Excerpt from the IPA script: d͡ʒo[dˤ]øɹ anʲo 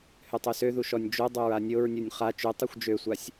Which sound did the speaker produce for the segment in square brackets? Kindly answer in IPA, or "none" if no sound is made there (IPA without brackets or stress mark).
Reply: dˤ